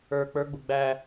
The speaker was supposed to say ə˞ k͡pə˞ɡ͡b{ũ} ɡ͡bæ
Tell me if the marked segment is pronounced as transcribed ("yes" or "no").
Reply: no